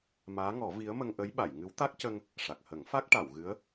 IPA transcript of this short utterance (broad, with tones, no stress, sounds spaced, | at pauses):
m aː˧˥ ŋ ɔ˨˩˦ v i˧˥ ə̯ m ə˧ ŋ ʔ ə˧˥ j ɓ a˨˩˨ j ŋ ɨ˧˥ w t̪ a˦˥ k̚ c ə˧ ŋ | ʂ a˨˩ k̚ h ə˨˩˦ ŋ f a˦˥ k̚ ʈ a˨˩˨ w ɣ ɨ˧˥ ə̯